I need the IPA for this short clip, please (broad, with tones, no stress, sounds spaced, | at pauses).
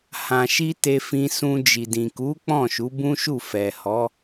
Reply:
h ã˨ ʃ i˧ t e˧ f ĩ˧ s ũ˧ d͡ʒ i˨ d ĩ˨ k u˨˦ k͡p ɔ̃˦˨ ʃ u˨˦ b ũ˦ ʃ u˦˨ f ɛ˨ h ɔ˨˦